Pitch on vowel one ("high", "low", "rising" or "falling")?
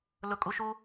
low